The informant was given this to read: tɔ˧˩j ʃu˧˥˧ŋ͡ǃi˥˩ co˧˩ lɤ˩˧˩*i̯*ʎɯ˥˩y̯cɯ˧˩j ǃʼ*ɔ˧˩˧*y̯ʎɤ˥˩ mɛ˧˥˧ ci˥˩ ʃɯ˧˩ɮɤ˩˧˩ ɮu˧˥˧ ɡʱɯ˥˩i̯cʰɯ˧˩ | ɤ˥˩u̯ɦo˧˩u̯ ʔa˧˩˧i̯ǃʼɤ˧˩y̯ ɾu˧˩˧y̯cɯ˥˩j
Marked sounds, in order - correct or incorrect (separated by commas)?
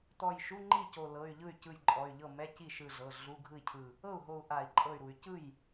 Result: incorrect, incorrect